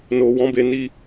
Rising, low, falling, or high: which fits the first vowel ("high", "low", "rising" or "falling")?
low